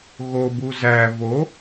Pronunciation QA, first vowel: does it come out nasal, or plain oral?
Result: oral